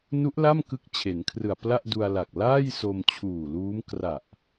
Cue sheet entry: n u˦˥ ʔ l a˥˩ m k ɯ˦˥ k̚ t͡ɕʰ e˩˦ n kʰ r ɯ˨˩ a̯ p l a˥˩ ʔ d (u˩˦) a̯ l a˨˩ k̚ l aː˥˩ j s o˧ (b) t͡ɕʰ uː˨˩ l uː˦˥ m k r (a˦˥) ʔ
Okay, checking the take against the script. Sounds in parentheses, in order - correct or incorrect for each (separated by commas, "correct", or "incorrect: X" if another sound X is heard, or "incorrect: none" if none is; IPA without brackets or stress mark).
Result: incorrect: u˧, incorrect: m, incorrect: a˨˩